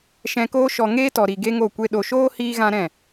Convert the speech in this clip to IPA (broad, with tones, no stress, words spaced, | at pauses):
ʃɛ̃˧koː˦ʃɔ˧ ŋeː˦tɔ˨ɾi˨ ɡe˦ŋo˦˨kʷe˦ ɗo˨ʃoː˦ hiː˦ɣã˦ɾɛ̃˦˨